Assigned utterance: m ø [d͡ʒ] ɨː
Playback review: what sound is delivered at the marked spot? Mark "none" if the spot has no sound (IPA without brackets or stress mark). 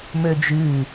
d͡ʒ